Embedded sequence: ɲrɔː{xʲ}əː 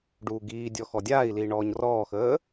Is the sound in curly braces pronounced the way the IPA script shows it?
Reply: no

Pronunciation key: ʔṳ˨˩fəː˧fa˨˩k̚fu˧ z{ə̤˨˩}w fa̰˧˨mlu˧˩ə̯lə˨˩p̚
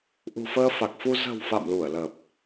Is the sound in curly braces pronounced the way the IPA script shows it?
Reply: yes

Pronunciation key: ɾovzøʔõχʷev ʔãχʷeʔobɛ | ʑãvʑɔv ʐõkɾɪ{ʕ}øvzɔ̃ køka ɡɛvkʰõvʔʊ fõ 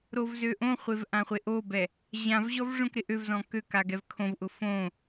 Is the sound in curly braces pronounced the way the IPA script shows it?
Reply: no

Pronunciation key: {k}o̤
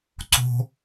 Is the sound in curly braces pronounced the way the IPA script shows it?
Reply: no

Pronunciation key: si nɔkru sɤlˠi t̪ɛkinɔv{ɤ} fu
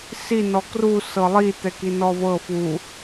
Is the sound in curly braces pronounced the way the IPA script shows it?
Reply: yes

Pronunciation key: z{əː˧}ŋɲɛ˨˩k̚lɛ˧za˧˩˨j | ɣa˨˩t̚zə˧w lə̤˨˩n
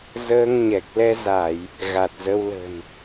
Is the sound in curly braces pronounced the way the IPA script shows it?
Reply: yes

